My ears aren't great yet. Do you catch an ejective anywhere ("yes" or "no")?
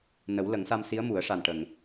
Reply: no